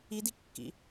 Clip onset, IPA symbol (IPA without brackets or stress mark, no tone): i